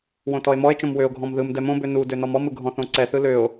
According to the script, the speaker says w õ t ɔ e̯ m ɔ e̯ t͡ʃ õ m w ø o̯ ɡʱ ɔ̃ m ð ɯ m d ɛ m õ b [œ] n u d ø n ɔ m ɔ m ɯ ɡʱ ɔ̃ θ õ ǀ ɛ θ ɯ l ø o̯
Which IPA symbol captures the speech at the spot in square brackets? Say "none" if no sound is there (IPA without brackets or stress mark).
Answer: ø